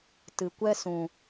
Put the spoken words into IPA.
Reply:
t ɨ˨ kʷ ɛ˦ s ũ˨

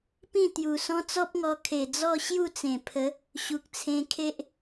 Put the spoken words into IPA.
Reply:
p ĩ˥˧ t̪ j u˨˩ s ɔ̃˦ t͡s ɔ˦ p̚ ŋ ɔ˧ kʰ e˨˩ d͡z ɔ˥˧ ɕ j u˥˧ t͡s ẽ˨˩ pʰ ə˨˦ | ɕ u˨ k̚ t͡sʰ ẽ˧ kʰ e˦ ʔ

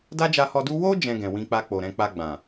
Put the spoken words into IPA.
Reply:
d a˦ d͡ʒ a˧ h ɔ˧ d u˦ w o˦ d͡ʒ ɛ̃˧ ɡ ɛ̃˨ w ĩ˧ k͡p a˧ k͡p o˨ ɾ ɛ̃˧ k͡p a˧ ɡ͡b ã˨

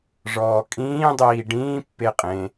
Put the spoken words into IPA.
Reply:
ʐ ɔː kʼ ĩː dˤ iː ɖ ĩː pː e qʼ ẽ

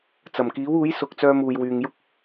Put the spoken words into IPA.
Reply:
t͡s ɐ˨˩ m k iː˨˥ w uː˨˥ j s ʊ˨ k̚ t͡s œː˧ m uː˨ j w yː˨ ŋ j ʊ˥ k̚

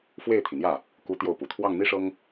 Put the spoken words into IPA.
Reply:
f w e˥˩ ɪ̯ t̪ʰ i˩ n̪ j ä˥˩ | k u˧˥ t̪ j o˥˩ ʊ̯ p u˨˩ t̪ʰ w ɑ˥˩ ŋ n̪ i˥ ʂ ɤ˥ ŋ

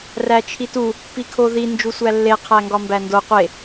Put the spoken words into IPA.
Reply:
r æ t͡ʃʰ i t u | p i kʰ o ð i n d͡ʒ u sʷ æ lː e qʰ æ ŋ ɡ ɒ m b æ n d o qʷ e

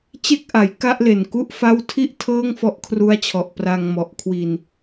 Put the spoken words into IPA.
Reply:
t͡ɕ e˥˩ k̚ ʔ a˩˦ j k a˥˩ ʔ l e˨˩ n k u˥˩ ʔ f a˦˥ w tʰ i˥˩ ʔ tʰ ɤː˥˩ ŋ f ɔ˦˥ ʔ kʰ r u˦˥ a̯ t͡ɕʰ ɔ˨˩ ʔ p r a˧ ŋ m ɔ˨˩ ʔ kʰ w i˧ n

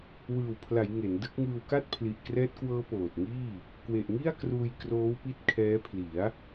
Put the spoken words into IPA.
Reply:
w ɯː˨˩ w pʰ l a˩˦ j ŋ e˩˦ n d ɯ˦˥ k̚ ŋ ɯː˧ w k a˥˩ t̚ pʰ l i˨˩ ʔ k r ɛː˦˥ t̚ k w ɤː˦˥ p oː˨˩ t̚ ŋ iː˥˩ | k w e˨˩ ʔ ŋ i˥˩ a̯ k r uː˧ j k r oː˦˥ w p i˦˥ t̚ kʰ ɛː˦˥ pʰ l i˩˦ a̯

